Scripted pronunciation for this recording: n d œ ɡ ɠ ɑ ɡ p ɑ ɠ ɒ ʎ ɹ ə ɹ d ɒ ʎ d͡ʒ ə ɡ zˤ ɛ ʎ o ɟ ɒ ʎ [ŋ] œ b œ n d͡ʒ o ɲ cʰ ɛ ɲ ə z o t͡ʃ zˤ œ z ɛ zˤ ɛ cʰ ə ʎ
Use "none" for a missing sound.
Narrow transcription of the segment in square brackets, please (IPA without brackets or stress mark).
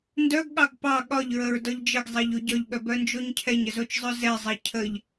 ɠ